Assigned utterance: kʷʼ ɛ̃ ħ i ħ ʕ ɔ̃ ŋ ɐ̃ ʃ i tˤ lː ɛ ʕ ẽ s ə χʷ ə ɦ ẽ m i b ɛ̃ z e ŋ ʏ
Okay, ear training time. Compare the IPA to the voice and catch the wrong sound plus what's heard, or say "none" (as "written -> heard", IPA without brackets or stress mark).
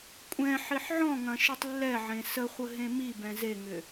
none